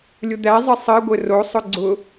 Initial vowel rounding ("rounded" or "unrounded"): rounded